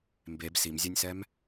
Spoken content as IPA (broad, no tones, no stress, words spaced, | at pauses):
mbeb simzʲɛnʲsɛm